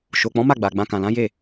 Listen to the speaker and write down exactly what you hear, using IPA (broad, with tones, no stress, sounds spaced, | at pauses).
ʃ o˨ k͡p ɔ̃˨˦ m a˦˨ ɡ͡b a˨ ɡ͡b ã˧ k ã˨ l ã˨˦ j e˦˨